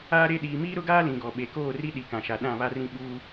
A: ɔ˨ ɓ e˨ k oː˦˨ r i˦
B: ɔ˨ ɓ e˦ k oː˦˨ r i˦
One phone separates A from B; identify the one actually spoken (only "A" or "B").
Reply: A